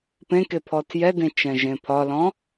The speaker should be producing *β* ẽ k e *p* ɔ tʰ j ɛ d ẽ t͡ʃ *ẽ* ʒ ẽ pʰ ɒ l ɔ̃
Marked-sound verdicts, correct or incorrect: incorrect: p, incorrect: pʰ, incorrect: ɛ̃

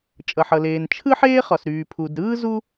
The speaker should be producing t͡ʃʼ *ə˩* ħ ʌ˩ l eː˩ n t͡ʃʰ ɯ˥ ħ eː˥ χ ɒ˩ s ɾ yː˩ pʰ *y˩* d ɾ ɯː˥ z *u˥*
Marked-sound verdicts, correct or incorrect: incorrect: ʌ˩, incorrect: u˩, correct

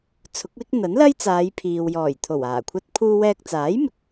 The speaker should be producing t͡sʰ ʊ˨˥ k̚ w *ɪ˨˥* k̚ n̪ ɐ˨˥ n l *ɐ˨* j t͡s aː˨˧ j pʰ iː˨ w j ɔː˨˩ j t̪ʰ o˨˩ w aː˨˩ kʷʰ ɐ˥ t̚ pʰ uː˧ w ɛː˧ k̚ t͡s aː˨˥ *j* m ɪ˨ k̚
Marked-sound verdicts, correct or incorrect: incorrect: ɪ˥, incorrect: ɐ˥, correct

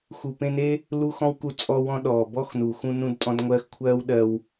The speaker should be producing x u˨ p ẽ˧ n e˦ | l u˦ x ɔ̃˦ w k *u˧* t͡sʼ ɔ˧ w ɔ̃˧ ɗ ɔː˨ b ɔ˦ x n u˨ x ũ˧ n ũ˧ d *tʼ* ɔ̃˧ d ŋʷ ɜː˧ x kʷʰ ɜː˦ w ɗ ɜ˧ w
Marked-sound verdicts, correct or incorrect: correct, correct

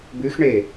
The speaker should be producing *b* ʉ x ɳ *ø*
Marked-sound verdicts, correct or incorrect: correct, incorrect: e

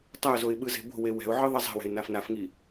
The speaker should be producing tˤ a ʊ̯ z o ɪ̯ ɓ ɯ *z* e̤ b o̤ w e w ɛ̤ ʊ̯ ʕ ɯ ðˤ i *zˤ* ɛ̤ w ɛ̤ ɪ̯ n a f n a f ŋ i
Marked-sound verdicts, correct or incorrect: correct, correct

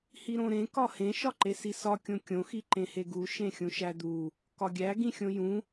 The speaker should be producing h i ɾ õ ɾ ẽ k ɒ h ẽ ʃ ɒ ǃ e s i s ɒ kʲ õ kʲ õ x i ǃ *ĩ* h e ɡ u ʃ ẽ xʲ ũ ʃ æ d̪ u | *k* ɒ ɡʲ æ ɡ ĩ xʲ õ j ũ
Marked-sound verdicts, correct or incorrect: incorrect: ẽ, correct

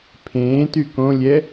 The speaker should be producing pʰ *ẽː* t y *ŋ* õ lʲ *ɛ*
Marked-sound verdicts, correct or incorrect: correct, incorrect: k, correct

